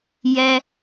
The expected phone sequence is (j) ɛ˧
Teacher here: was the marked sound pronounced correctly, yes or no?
yes